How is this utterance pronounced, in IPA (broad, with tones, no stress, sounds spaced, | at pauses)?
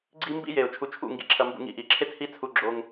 ɡ͡ǀ i˦ m b ḭ˦ j e˨ ʊ̯ t͡ʃʰ u˧ t͡ʃʰ ṵ˦˨ ŋ ɡ ḭ˧ ǁʰ ɐ˧ m b ṵ˧ ŋ ḭ˧ ʔ i˨ ǁʰ e˦ t h i˦ t͡sʰ u˧ ɡ͡ǁ o˧ ŋ